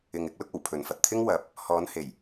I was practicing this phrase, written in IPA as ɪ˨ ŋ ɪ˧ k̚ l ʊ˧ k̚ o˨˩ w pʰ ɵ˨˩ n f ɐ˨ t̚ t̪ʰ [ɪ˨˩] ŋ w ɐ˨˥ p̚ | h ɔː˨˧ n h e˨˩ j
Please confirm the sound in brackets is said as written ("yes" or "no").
no